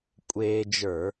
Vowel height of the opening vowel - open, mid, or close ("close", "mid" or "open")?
mid